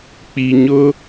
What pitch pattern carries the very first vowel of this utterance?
low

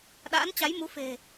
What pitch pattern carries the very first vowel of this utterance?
rising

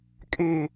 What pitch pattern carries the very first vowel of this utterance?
low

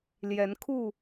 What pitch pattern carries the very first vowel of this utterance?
rising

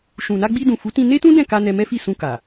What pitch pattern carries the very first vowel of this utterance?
low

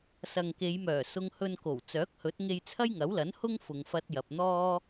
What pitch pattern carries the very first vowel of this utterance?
low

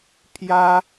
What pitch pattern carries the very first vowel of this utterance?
high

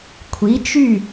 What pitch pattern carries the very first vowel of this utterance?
rising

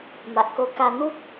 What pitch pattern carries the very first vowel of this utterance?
low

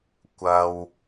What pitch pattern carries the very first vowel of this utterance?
high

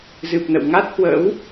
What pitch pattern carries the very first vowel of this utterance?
low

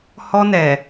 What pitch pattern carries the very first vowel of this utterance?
high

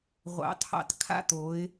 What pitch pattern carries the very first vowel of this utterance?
rising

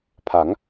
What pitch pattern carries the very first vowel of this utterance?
rising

